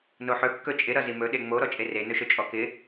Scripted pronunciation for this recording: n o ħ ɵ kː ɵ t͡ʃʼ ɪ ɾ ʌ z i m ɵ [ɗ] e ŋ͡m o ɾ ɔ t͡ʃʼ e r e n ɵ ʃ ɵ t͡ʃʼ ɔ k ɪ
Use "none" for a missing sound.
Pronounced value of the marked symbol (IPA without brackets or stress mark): ɗ